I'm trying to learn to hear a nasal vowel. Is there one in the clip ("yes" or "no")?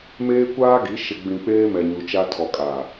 yes